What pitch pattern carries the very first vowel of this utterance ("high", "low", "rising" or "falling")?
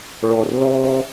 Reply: low